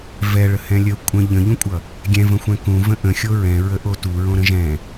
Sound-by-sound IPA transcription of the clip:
v ɛ ɭ ə h ɛ̃ lʲ ə kʷʼ ə̃ ʎ ə̃ ʎ ũ kʷʼ ʌ | ɡʲ ɛ̃ v ə̃ xʷ ɛ̃ k ũ v ə̃ ʔ ə̃ xʲ o ɹ ɛ̃ ɹ ə ʔ o t u ɹ õ ɾ ə̃ ʒ ɛ̃

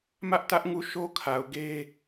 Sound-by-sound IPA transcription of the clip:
m ä˦ ʔ t ä˦ ʔ ŋ u˦˨ ʃ o˦ kʰ a˨ ʊ̯ ɡ e˦

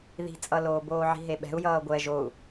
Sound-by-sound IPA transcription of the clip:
ð i̤ t͡sʼ ʌ l oː b oː ʕ i̤ ɦ e ɓ ɛ̤ u̯ j ʌː ɡʷ ɛ ʒ o u̯

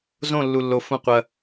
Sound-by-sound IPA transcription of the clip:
z õ˥˧ lː u˧ lː o˧ f ũ˧ qʷ ɐ˧

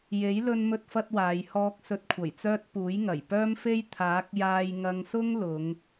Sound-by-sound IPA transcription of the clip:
j e˨˥ j l ɵ˥ n m ɵ˥ t̚ f ɐ˥ t̚ w aː˨˧ j h ɔː˧ k̚ s ɵ˧ t̚ kʷʰ ɐ˨˩ j t͡s œː˥ t̚ p uː˨˥ j ŋ ɐ˨˩ j p œː˥ m f e˥ j t̪ʰ aː˨˥ k̚ j aː˧ j ŋ ɐ˧ ŋ s ʊ˥ ŋ l ʊ˨˧ ŋ

